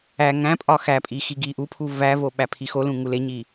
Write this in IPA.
æ ŋ æ̃ pʼ ɒ x æ pʼ i x i ɡ i ʔ u pʰ u v æ v o ɓ æ pʰ i x o l ũ ŋ u l e ɲ i

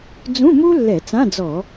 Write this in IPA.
d͡z ũ˧˥˧ m u˥ lː ɛ˧˩˧ t͡s ã˧˥˧ d͡z ɔ˧˩˧

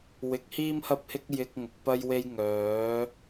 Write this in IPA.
w ɪ˨˥ k̚ h iː˥ m h ɐ˥ p̚ h ɪ˥ k̚ j ɪ˧ k̚ ŋ ʊ˨ k̚ p ɐ˥ j w e˥ j ŋ œː˨˥

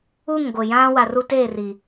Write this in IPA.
u˦˨ ŋ ɡʷ ɪ˨ j ã˦ w a˨ r u˦ t e˦˨ r i˨

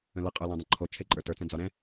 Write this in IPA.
ə̃ l ə qʼ ə˞ l ɛ̃ dˤ ə̃ ǃʰ o t͡ʃʰ e ǃʼ ə˞ t ə˞ t͡s ɛ̃ d͡z ɒ ɾ ɛ̃

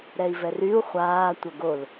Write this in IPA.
ɾ ɛ i̯ v ɛ r y u̯ χʷ aː tʷ œ ɡ o l

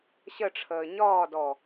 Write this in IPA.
ɕ ə ʈ͡ʂʰ əː ɲ ɒː d ɔ

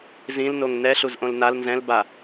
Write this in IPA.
z ĩ l n o ŋ n ɛ ɬ u z ʔ õ l n a l n z ɛ̃ l b a

